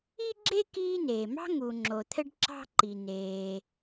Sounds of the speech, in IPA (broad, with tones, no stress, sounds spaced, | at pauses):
i˥ ɡ͡ǁ e˥ k iː˥ n eː˩ m ɑ̤˥ ŋ u˩ ŋ͡ǁ o˩ t̪ʰ ɘ˥ ɖ ǁ ɑ̤˥ ǃ i˩ n eː˩